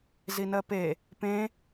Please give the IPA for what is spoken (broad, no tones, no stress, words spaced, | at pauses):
zinɜpe | pẽ